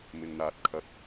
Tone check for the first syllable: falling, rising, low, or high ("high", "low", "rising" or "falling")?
low